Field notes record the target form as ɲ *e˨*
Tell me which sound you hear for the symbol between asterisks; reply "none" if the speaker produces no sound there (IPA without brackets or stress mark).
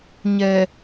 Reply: ɛ˨